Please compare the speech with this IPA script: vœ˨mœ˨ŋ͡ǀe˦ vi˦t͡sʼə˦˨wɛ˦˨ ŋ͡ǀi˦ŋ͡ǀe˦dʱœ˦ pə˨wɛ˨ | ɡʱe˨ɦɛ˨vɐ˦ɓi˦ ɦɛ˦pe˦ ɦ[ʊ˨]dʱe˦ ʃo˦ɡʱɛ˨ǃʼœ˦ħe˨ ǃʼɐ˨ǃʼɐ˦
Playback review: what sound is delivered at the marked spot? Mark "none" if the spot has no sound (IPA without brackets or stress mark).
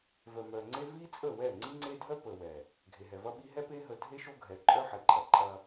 ə˨